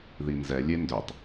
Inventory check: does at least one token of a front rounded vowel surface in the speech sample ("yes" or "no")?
yes